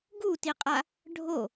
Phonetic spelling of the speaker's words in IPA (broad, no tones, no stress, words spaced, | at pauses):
ɡutiqʼa | ɖʱo